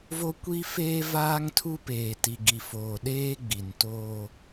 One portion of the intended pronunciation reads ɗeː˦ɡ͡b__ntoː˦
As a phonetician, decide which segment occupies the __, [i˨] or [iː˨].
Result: i˨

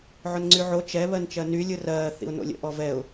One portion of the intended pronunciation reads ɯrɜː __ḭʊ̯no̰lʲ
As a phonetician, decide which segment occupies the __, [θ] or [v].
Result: θ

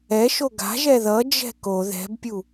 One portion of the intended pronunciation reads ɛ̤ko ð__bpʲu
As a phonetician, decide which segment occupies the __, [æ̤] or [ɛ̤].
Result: ɛ̤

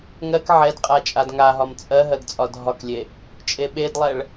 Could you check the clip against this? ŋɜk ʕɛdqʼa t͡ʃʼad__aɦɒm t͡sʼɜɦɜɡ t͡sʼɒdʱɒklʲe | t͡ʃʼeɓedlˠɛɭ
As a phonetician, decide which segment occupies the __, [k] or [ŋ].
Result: ŋ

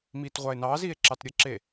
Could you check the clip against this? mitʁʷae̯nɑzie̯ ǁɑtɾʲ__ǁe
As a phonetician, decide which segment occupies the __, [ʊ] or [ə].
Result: ə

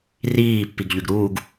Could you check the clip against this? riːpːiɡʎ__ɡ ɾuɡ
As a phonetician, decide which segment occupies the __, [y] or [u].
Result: y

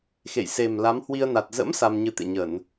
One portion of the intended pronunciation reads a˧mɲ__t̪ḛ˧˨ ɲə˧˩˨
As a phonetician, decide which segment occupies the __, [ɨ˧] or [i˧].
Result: ɨ˧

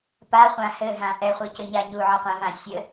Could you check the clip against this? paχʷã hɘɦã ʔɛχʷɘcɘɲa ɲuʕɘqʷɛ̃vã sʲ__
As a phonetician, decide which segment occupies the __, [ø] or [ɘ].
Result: ɘ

